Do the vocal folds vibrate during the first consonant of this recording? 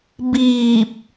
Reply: yes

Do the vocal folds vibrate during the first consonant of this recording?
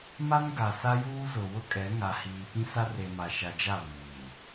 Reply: yes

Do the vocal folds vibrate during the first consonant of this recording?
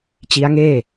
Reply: no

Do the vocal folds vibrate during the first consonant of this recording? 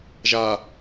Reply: yes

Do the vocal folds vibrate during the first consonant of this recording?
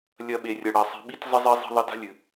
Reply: yes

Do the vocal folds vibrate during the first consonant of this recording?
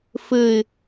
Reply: no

